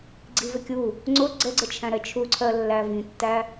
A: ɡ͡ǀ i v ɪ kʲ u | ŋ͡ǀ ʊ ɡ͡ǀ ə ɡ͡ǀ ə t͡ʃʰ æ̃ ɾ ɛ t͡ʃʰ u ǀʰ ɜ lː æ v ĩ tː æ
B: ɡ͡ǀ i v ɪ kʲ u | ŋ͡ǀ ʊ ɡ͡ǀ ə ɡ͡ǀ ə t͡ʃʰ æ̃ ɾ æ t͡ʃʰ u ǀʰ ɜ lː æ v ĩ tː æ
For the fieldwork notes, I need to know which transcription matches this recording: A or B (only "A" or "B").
A